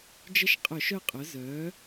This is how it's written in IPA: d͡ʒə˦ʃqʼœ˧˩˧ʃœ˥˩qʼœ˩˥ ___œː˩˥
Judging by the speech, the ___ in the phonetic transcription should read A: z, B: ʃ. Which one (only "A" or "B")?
A